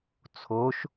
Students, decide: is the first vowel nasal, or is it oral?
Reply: oral